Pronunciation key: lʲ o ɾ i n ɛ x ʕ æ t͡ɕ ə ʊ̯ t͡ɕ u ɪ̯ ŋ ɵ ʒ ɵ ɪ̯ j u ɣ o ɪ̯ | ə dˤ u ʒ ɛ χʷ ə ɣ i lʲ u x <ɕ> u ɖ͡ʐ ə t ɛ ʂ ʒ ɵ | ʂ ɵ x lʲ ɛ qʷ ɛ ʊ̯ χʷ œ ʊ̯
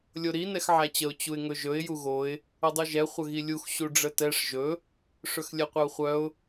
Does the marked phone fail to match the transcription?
no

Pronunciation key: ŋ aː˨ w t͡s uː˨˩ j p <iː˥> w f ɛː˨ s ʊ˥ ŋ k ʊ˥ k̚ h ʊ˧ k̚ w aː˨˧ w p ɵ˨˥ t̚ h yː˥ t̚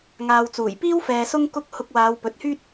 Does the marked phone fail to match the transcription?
no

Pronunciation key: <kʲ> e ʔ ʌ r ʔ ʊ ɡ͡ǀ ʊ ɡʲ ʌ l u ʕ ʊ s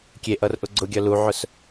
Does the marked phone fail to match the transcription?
no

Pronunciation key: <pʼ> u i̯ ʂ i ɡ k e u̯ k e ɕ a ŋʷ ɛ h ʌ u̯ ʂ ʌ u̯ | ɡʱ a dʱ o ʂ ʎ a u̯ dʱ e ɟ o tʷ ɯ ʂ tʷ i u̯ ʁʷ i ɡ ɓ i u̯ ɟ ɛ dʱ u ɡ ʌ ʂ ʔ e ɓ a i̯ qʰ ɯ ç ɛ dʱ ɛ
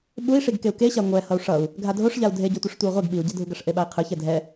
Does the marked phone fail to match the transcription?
yes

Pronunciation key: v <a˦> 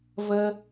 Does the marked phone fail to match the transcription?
yes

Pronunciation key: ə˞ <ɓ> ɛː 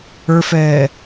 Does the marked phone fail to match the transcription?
yes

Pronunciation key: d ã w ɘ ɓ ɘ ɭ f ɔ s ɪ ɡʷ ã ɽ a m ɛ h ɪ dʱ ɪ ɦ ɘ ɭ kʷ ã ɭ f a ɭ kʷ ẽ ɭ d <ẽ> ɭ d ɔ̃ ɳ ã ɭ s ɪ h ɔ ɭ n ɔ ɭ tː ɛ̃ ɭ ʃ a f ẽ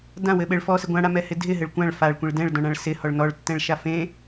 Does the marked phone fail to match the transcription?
yes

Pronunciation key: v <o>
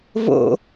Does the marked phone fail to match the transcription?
yes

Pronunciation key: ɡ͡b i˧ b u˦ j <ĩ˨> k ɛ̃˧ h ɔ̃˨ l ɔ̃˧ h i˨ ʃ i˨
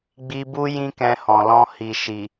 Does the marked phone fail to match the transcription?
yes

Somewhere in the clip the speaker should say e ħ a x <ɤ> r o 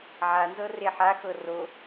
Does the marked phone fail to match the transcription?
no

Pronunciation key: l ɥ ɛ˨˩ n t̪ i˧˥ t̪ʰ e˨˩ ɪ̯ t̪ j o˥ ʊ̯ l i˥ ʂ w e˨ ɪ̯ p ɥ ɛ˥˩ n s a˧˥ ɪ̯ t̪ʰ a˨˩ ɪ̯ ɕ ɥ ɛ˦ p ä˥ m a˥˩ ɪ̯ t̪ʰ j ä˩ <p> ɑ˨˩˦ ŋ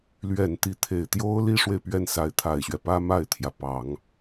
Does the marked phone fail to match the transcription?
no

